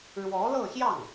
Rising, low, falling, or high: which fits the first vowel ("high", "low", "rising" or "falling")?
rising